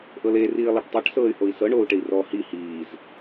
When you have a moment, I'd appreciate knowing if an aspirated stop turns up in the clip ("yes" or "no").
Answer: no